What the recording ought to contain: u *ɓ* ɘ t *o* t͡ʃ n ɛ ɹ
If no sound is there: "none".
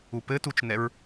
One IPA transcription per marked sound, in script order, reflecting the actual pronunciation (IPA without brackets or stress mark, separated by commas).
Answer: p, u